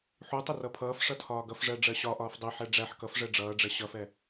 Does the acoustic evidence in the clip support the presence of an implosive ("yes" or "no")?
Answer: no